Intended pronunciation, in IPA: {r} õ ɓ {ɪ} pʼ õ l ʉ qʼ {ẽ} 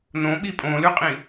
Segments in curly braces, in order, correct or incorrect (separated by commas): incorrect, incorrect, incorrect